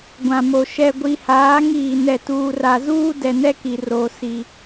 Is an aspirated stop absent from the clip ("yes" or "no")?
yes